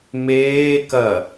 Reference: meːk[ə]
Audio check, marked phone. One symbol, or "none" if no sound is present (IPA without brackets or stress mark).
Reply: ɐ